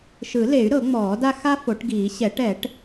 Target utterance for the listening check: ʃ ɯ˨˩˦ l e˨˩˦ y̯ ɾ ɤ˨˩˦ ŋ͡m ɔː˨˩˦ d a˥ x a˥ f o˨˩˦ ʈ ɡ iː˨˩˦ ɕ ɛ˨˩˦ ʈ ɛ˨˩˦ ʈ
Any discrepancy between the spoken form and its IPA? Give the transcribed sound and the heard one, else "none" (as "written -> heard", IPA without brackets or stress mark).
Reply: none